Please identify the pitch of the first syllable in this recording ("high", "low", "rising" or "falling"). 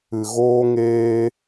low